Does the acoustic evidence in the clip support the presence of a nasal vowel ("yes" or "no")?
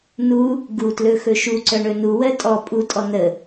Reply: no